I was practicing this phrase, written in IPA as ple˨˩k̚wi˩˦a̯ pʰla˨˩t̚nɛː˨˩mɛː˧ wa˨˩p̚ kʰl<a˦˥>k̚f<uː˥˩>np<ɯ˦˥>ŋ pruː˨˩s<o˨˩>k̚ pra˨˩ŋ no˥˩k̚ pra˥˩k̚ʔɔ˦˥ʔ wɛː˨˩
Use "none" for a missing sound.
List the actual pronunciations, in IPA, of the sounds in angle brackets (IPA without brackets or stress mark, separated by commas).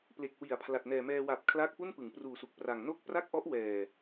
aː˦˥, u˥˩, ɯ˩˦, u˨˩